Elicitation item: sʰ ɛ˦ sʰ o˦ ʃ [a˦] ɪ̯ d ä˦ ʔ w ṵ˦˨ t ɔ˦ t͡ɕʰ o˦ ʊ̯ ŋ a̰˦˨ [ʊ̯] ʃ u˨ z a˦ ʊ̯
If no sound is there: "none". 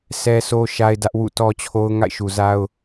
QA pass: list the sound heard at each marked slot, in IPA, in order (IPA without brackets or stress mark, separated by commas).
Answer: a˦, ɪ̯